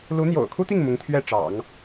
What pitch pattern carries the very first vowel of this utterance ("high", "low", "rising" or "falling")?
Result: rising